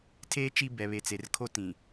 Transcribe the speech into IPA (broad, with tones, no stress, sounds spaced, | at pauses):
tʰ eː˦ t͡ʃ i˦ b ɛ˨ β e˨ t͡s e˨ r kʰ o˦ t ĩ˨